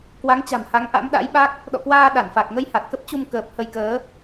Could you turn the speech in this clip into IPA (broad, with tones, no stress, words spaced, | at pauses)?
kwa˨˦ŋt͡ɕa̤˨˩m ha˨˦ŋʔa̰˧˥mɗa̰˧˥jɓa˦˥k̚ | ɗɔ̰˧˨kwaː˧ ɗa˧˩nfa˨˩k̚ ŋə˧jha˨˩t̚kə˦˥p̚t͡ɕu˧m kəː˨˩p̚hə˧jkəː˨˦